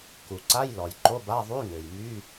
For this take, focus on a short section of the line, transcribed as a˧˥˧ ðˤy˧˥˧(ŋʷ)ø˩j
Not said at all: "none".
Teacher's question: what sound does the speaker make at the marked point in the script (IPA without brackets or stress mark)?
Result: ŋ